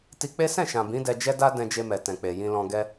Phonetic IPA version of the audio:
t i˧ k͡p e˦ s ɛ̃˦˨ ʃ ã˨ b ĩ˨˦ d ɛ˧ d͡ʒ ɛ˦ d a˦ d ɛ̃˧ d͡ʒ e˧ m ɛ˨ t ɛ̃˨ k͡p e˨ j ĩ˧ l ɔ̃˧ ɡ ɛ˦

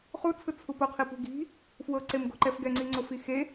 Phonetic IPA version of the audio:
χ u t͡sʰ ɯ t͡sʰ u p o qʰ i p ṳ ɡ i̤ | f w ɤ ǀ e m ɡ o̤ ǃ ɛ f ɡ ɛ ŋ͡ǀ i ŋ͡ǀ o f i x e

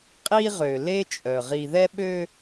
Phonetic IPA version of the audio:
qʼ i˦ ʁ ø˨ l e˦ t͡ʃʼ œ˨ ʁ i˨ ð ɛ˦ ɓ ø˦

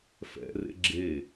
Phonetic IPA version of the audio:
f ɛ̰ r ḛ ɡ͡ǁ e

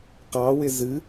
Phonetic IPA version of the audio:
q ɑ w ɪ z ɨ

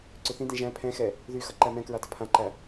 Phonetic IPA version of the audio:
ǀ ʏ θ ĩ d ĩ ʒ æ̃ pʰ ɛ̃ x ɛ | ð y x ʌ ǃ æ m ɛ̃ k ɹ a d ʌ pʰ ã ǃ æ

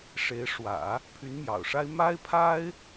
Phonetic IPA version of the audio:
ʂ e˧˥ ɪ̯ ʂ w ä̰˨˩˦ | pʰ y˧˥ n m j ɑ̰˨˩ ʊ̯ ʂ a˥ ɪ̯ m a˥ ɪ̯ pʰ a˥ ɪ̯

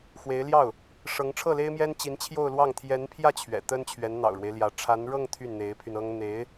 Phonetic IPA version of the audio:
x w e˧˥ ɪ̯ l j ɑ˥˩ ʊ̯ | ʂ ɤ˧˥ ŋ ʈ͡ʂʰ ɤ˥˩ l e˥ ɪ̯ m j ɛ˥ n t͡ɕ i˧˥ n t͡ɕʰ j o˥˧ ʊ̯ l w ɑ˥˩ ŋ t̪ʰ j ɛ˧˥ n pʰ j ä˥˩ t͡ɕʰ ɥ ɛ̰˨˩ t̪ ə˥ n t͡ɕʰ ɥ ɛ˧˥ n n̪ ɑ̰˨˩ ʊ̯ ɻ w e˦ ɪ̯ l j ä˧˥ ʈ͡ʂʰ a˧˥ n ɻ ɤ˥˧ ŋ t̪ʰ y˥˩ n n̪ e˧˥ ɪ̯ pʰ y˧ n ɤ˥ ŋ n̪ e˧˥ ɪ̯

